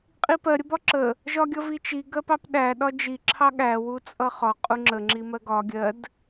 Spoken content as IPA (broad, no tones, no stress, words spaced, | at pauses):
qʼipɜ ɾʲəbɒǁə | ʒɒɡʲʌvit͡ʃi ɡɜpɑpɗæ ɗɒd͡ʒi ǁʰɑɠæ wut͡sʼʌχɒ qʼuŋ͡ǁə ŋ͡ǁimɜɡɒ ɡʲɜd